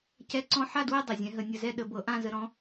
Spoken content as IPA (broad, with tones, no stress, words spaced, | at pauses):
cɛ˦˥ǀɔ̃˦˥ ħa˥˧dwɛ˥˧ dˤa˩zʲɛ̃˨˦ɦə˨˩˦ nʲə˨˩˦zɛ˥˧ ɗə˨˩˦bɤ˨˩˦ʔã˥˧ zə˨˦ɾɔ̃˨˦